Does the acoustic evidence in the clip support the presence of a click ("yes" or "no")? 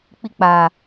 no